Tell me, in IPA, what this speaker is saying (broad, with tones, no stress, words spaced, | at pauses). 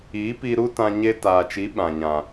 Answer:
i˨˦pi˧ɾu˦tã˧ ɲe˦ taː˨t͡ʃi˨˦ ɓã˨ ɲã˨